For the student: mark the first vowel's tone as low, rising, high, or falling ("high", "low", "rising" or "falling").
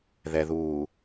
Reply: low